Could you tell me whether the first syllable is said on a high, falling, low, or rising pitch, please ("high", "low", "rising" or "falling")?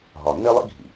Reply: low